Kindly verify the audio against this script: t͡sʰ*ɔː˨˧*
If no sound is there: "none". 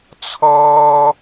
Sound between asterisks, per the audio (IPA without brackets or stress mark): ɔː˥